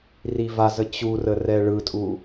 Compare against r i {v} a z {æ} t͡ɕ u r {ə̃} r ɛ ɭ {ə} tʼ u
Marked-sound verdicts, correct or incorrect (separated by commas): correct, incorrect, incorrect, incorrect